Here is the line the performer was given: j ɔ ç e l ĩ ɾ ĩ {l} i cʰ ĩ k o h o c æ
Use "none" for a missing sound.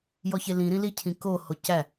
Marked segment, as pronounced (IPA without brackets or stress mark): l